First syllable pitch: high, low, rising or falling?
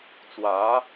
rising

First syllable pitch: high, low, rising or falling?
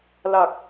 low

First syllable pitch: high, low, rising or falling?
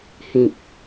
low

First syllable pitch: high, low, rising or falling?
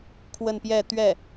falling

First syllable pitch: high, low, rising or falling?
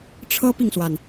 high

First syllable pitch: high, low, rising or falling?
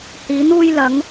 rising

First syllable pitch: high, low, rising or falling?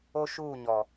high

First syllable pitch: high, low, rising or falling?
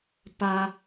low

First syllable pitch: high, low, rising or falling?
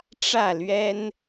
falling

